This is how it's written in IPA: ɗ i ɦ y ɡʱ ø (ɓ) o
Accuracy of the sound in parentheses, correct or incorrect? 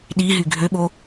correct